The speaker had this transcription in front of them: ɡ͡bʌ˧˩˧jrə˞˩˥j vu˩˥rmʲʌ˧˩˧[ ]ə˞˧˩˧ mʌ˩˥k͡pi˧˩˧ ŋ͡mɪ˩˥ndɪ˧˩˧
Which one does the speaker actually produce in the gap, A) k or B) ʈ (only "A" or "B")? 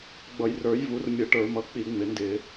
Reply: B